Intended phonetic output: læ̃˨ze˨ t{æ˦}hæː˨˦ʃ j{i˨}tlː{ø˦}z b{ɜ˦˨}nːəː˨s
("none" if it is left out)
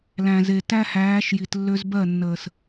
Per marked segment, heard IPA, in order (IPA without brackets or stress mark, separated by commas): æ˦, i˨, ø˦, ɜ˦˨